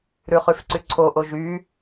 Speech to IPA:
ɾʉχyfǀyǀʰo ʔoʒy

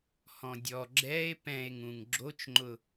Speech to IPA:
hɔ̃dʲɔ ɡ͡ǁɛe̯ pɛ̃e̯ŋũŋ ɡ͡ǁot͡ʃŋ͡ǃʊ

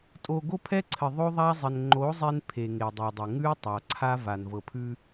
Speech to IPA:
tʼo˨ ɡo˦pʰɛ˦ǀʰɘ˨ ðˤo˦ðˤa˦zˤɘ˨n ŋ͡ǃo˨˦ zˤe˦n pʰe˨ŋe˨dˤɤ˨dˤɘ˨ ŋʉ˦ tˤa˨ǀʰa˦va˨n vɤ˨pʰʉ˦

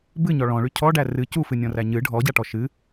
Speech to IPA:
bɨɲɔ ɭɔ̃ɭy cʰɔɖæ rɨ cufɨnʲɔ̃ræ ɲɨ ɖʱɔɟaʈɔ ʃɨ

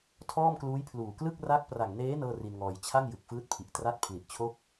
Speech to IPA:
tʰɔː˥˩mkluː˦˥jpʰluː˨˩ klɯ˥˩k̚ra˦˥k̚ pra˨˩ŋneː˦˥ nɤː˥˩ri˧nŋɔː˧j t͡ɕʰa˥˩ŋjɯ˨˩k̚fɯː˦˥t̚pʰi˨˩ʔ tra˦˥t̚pʰli˨˩ʔt͡ɕʰo˥˩k̚

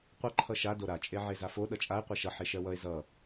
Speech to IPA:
qʷʌ ǃʰʌʃa doɾa t͡ʃʼeʕezafo ɗʌt͡ʃʼae̯ qʷɜʃʌ ħeʃɜwʌe̯ zʌ

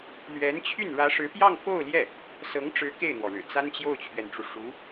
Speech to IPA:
lɥɛ˧˥nt͡ɕʰy˥˩n ɻä˧˥ʂɻ̩˧˥pjɑ˥˧ŋ fo˥˧ʊ̯ljɛ˥˩ | sɤ˧˥ŋʈ͡ʂɻ̩˧˥ ke˥˩ɪ̯n̪wɔ˩ɻɻ̩˨˩ t͡sa˥nt͡ɕjo˥˩ʊ̯t͡ɕʰɥɛ˩nʈ͡ʂu˩ ʂu˧˥

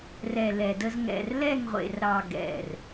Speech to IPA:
rɛ˨ lɛ˨də˦z ŋɛ̰˨rlɛ˦˨ŋʁʷḛ˨rɾɑ˨ ɡɛ̰˨r

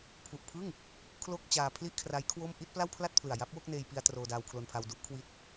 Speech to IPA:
pʰu˨˩ʔpʰɯ˥˩ŋ | kʰlo˥˩k̚t͡ɕaː˧pʰli˥˩ʔkʰra˦˥j kʰwo˥˩m ʔi˥˩t̚pla˥˩wpʰla˥˩t̚ pʰlɯ˨˩a̯ ja˦˥p̚wo˥˩k̚neː˧j pi˧a̯ troː˧daː˧wkʰlo˧npʰa˧w du˦˥ʔkʰwi˦˥t̚

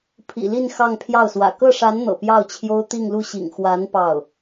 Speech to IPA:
pʰḭ˨˩li˥˧n xɑ˥˧ŋpʰjɑ˥˩ʊ̯swä̰˨˩ kɤ˥˩ʂa˧˥n n̪ɤ̰˨˩pjɑ˥˩ʊ̯t͡ɕʰjo˥ʊ̯ t̪i˥˧ŋlu˥˩ɕḭ˨˩ŋ xwa˧˥n pɑ˥˩ʊ̯

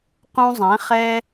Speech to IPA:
qũ˧zˤɛ̃˩˧χɛ˧

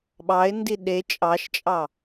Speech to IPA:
ɓɑɪ̯ndi ɗe t͡ʃʼɑʃt͡ʃʼɑ

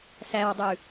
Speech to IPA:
sæwdˤʉ

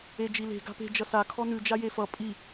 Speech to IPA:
ed͡ʒile̤ ɡa̤pe̤ d͡ʒʌsa kʰɔnʉ d͡ʒajefʌ pʼi

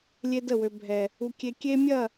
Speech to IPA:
lʲe˦də˦˨wø˦bʱɛ˦ | u˦kʲe˦ kʲe˦ mʲɐ˦˨

